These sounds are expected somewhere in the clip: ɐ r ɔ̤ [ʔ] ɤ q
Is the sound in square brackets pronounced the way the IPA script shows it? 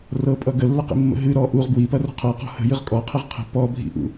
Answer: no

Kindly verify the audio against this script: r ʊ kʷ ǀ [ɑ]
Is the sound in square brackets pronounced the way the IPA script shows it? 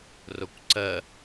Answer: no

